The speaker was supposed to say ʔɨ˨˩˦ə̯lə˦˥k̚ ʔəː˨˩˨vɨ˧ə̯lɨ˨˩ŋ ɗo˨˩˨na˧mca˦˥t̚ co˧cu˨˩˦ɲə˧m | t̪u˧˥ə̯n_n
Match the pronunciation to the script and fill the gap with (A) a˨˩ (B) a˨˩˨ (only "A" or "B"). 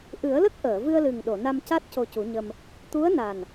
A